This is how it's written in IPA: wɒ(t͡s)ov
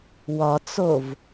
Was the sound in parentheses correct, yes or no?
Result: yes